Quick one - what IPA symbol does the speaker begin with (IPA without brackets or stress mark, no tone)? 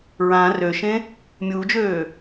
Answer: ɹ